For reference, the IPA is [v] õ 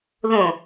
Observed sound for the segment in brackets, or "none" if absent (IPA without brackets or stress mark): ð